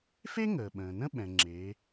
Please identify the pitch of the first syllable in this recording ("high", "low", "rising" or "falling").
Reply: high